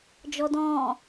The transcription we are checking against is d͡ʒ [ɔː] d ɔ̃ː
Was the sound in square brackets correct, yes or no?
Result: no